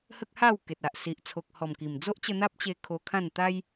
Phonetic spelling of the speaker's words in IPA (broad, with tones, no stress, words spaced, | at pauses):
hə˦k̚ha˥˧w ke˨t̚a˨ʔ si˨ʔt͡sʰo˨k̚hɔ˨˩mki˨˩m d͡zo˦ʔt͡ɕə˧ n̪a˦p̚t͡ɕe˧ kʰo˧kʰã˥˧n t̪a˦j